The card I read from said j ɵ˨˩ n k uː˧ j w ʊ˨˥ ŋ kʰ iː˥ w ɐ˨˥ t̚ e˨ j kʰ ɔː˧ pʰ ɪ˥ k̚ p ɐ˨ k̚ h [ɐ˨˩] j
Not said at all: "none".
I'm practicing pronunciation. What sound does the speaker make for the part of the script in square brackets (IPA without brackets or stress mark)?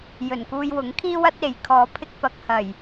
ɐ˨˩